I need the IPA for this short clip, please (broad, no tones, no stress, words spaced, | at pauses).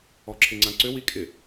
ɔǁʰɪŋ͡ǀãǀʏ wikʼɪ